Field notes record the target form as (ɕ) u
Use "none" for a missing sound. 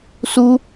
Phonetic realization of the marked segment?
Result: s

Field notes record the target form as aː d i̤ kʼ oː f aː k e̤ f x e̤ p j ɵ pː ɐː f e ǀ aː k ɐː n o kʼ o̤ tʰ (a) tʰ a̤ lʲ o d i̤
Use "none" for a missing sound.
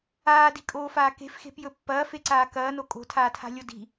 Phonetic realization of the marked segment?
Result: aː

